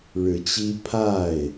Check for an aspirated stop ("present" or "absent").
present